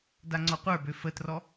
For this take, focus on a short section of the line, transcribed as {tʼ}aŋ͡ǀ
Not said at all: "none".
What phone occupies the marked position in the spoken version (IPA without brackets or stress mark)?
d